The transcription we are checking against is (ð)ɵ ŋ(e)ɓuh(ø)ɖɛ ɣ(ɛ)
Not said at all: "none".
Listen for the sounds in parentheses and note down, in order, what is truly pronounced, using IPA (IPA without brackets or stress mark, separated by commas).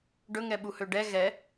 ɖ, ɛ, ø, ɛ